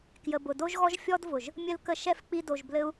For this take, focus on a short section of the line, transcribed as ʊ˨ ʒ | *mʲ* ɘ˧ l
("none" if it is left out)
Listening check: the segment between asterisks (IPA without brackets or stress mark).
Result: mʲ